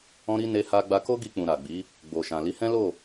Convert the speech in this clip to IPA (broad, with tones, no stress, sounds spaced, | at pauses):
ɔ̃˦ ɾ i˦ n e˦ h a˦ ɡ͡b a˧ k o˦ ɡ i˧ k͡p ũ˨ ɾ a˨ ɡ͡b i˨˦ | ɡ͡b o˨ ʃ ã˨ l i˨˦ h ɛ̃˦ l o˦˨